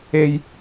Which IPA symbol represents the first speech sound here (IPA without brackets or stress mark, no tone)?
e